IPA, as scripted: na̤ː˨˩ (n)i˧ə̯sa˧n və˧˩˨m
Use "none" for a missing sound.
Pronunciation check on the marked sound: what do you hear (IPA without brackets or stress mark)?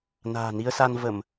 n